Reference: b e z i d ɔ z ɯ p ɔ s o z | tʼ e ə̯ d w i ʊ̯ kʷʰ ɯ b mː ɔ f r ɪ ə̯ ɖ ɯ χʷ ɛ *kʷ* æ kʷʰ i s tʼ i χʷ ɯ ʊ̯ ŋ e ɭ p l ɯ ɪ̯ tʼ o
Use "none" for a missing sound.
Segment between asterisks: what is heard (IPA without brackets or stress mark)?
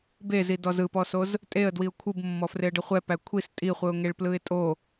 p